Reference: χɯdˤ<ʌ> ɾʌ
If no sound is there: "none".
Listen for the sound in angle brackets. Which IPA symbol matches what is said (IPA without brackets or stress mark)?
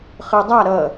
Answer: a